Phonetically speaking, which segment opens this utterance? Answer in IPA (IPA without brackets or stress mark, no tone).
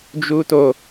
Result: d͡ʒ